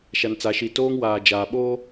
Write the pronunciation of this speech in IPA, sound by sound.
ʃa˨n t͡sa˨ʃi˨ toː˦ŋwaː˨ d͡ʒaː˨ ɓoː˦

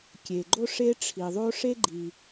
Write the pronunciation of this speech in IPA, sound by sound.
kʲe˩ɡ͡ǃo˥ ʂe˥ʈ͡ʂʰi˩ðˤo˥ ʂe˥ ɡ͡ǃi˩

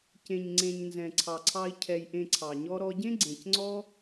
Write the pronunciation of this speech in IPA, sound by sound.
cẽ˨ɲŋ͡ǀẽ˨ɲ nzɛ̃˨ǀʰɑ˨ǀʰɑ˧i̯ cʰɛ˧jʔẽ˧ǀʰɑ˨ɲɔ˦ ɾɔ˧ɟẽ˦ ɡ͡ǀẽ˨cŋ͡ǀɔ˦

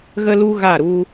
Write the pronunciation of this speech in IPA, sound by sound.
ɣə˦lu˦ ɣa˦˨ɾu˦

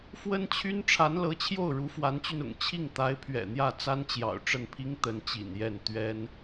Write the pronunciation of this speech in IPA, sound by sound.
fwə˥nt͡ɕʰy˥n ʈ͡ʂʰa˧˥nlɤ˧˥t͡ɕʰjo˥˩ʊ̯ ɻu˧˥fwa˧˥nt͡ɕy˧nʊ̰˨˩ŋ t͡ɕʰi˥˩ŋt̪a˧˥ɪ̯ pʰɥɛ̰˨˩n̪jä˥˩ t͡sa˥nt͡ɕjɑ̰˨˩ʊ̯ ʈ͡ʂə˥˩npʰi˥ŋ t̪ə˧˥nt͡ɕḭ˨˩njɛ˥˩n t̪ɥɛ˥n

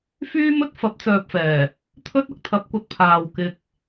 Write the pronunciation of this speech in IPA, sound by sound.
fyː˥ mɵ˥t̚ fɐ˨˥p̚t͡sœː˨p̚fɛː˨˩ | t̪ʰɵ˥t̚ɐ˥k̚t̪ʰɐ˨˥p̚kʷɐ˨t̚ pʰaː˨wkɪ˧k̚

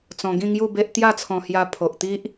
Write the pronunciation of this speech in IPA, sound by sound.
t͡sɔ̃˧ɡĩ˥˧ŋju˥˧be˦ʔ t̪ja˥˧t͡sʰɔ̃˧hja˧ pʰo˨ʔt̪i˦ʔ

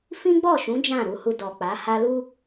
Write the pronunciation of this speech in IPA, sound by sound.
fĩ˦ɡ͡bɔ˦˨ʃũ˨˦ d͡ʒã˦˨ɾu˧hu˧ dɔ˨ k͡pa˨˦ha˦ lu˧

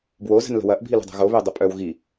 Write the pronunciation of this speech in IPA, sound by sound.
bwozə̤n lə̤wɐʔ bʱilṳdˤo̤ɣo βedˤəpʼœw ɣi

